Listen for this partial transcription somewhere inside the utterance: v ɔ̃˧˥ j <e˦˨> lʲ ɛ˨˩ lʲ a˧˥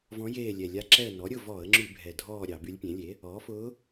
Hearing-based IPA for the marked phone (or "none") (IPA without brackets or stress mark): eː˦˨